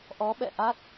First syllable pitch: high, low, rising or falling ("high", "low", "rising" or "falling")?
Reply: rising